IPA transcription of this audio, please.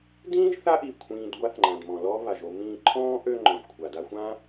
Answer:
d ĩː˥ ʒ θ a˥ ʔ i˩ kʷʰ ĩː˨ d ɡʷ a˦ θ ŋ͡ǃ ã˩ d m ɔ̃˩ l ɔː˥ β a˩ ʒ o˦ m ĩː˦ ǃʰ ɔ̃ː˥ ʔ ø˦ ŋ͡ǃ ɔ̃˩ ʒ kʷʰ a˩ d a˦ xʷ ã˥

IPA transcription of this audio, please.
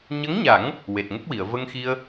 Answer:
ɲ ə˧˥ ŋ ɲ a˨˩˦ ŋ | w e˨˩ t̚ ŋ ə˦˥ k̚ w i˨˩˨ ə̯ v ə˧ ŋ x i˧ ə̯

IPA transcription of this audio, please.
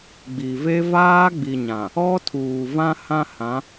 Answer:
ɡ͡b i˨ v e˦ v aː˦ ɡ͡b i˨ ɲ ã˨ | ɔ˦ tʰ uː˨ v ã˦ h ã˦ h ã˨˦

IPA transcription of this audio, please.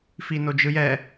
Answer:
f i n o d͡ʒ ɯ j ɛ

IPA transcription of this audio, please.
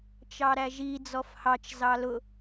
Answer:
t͡ʃ ɑ ɾ æ ʒ i d͡z ɔ f h ɑ t͡ʃ z ɑ l ʊ

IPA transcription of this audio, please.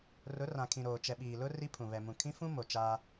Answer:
r ʊ˨˦ r ã˨ kʰ ĩ˨ ɾ oː˨ t͡ʃ ɛ˨ ɓ iː˨ l ʊ˦ r i˦ pʰ ũ˨ β ɛ˨ m ũ˨ kʰ ĩ˦ f ũ˦ m o˨ t͡ʃ aː˦

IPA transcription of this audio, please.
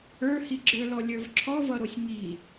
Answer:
ə˞ h i ɡ͡ǁ ə˞ l ɔ lʲ ə˞ v ǁʰ ɔ v ʌ ɾ o sʲ ŋ i

